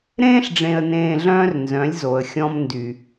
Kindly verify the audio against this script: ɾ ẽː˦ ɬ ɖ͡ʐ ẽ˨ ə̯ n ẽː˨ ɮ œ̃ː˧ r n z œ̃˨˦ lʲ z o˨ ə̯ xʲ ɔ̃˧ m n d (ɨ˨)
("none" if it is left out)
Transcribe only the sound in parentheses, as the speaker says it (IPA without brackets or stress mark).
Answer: y˨